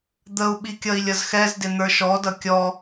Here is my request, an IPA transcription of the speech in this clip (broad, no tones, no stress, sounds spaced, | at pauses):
d̪ ə u̯ ɓ i kʲ ʌ i̯ lʲ ʌ z x ɛ z d ɪ n̪ ə˞ ʃ ɔ d ʌ kʲ ɔ